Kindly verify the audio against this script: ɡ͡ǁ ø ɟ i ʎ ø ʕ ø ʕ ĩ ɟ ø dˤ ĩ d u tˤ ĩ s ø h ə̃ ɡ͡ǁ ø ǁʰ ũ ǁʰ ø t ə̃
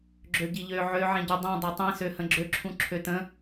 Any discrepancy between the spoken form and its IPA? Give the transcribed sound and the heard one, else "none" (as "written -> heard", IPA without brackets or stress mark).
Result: d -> dˤ